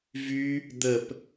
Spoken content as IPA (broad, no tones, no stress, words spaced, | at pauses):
vy | d̪əp